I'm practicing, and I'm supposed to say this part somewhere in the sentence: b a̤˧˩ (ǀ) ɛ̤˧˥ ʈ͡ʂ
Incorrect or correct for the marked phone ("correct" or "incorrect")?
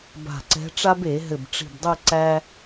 correct